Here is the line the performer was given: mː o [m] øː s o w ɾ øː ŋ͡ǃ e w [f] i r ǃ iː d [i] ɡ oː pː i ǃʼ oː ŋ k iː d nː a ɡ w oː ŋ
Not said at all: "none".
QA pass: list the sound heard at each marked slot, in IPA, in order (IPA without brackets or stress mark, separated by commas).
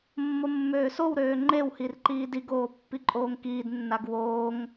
mː, h, i